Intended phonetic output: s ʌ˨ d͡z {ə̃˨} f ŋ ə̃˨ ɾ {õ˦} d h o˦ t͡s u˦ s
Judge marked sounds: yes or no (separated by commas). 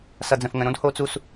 yes, yes